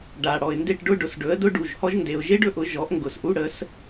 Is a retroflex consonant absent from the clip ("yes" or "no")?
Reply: no